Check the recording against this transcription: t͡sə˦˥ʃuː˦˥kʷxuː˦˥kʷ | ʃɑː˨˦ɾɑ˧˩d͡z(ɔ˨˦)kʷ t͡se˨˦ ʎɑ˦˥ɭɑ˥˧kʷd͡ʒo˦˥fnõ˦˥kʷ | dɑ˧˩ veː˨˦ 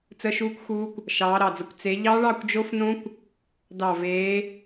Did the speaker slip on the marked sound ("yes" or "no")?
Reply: yes